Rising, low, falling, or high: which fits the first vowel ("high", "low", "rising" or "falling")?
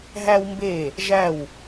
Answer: high